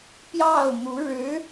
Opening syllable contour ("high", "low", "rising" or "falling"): falling